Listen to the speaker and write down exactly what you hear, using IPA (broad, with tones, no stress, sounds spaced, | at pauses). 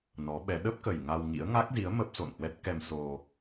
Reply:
n ɔ˨˦ ɓ ɛ˨˦ ɗ ə˦˥ p̚ k ə˨˩ j ŋ a˧ w ŋ ḭ˧˥ ə̯ ŋ a˦˥ k̚ z i˨˦ ə̯ m ə˦˥ p̚ s o̰˧˨ n h w ɛ˦˥ t̚ k ɛ˧ m s o˧